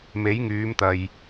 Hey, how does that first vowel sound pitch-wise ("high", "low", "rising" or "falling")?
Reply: rising